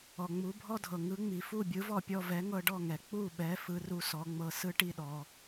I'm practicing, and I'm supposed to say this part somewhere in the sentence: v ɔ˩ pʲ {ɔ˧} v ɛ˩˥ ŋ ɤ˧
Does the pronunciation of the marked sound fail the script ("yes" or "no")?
no